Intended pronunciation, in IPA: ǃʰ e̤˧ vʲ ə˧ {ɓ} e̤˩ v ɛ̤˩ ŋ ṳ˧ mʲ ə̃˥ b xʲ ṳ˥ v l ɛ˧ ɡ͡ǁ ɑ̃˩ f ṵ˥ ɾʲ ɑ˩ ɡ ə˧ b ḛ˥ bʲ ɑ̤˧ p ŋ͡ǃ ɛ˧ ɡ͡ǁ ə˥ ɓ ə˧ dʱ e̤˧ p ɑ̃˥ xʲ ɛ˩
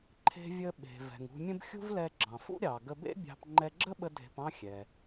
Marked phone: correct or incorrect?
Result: correct